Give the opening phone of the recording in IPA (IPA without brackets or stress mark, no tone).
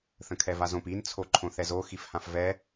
θ